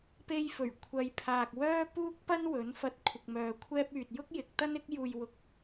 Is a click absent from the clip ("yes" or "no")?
yes